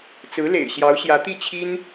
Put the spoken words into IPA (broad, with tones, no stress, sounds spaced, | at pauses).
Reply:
t͡s ɹ̩˧˥ l ḛ˨˩ ɪ̯ ɕ j ɑ˧˥ ʊ̯ ɕ j ä˧˥ t̪ i˥˩ t͡ɕʰ i˥ n